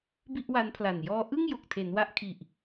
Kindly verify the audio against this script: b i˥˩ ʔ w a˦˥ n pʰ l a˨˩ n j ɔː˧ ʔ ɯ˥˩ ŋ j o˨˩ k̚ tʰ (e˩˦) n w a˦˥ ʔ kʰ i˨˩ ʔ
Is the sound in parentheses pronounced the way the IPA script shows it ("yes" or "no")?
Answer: yes